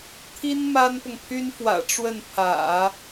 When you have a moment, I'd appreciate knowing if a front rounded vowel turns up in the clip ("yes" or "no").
yes